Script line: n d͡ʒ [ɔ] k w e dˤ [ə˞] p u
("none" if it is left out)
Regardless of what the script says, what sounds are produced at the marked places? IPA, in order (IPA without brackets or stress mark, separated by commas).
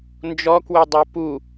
ɔ, ə˞